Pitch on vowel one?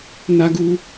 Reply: high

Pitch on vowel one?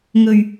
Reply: low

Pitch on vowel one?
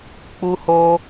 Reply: high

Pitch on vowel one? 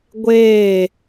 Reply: falling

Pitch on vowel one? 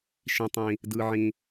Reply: low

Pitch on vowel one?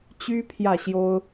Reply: high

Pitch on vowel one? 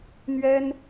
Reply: high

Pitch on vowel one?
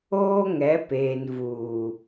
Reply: high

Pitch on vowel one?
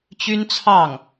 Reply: high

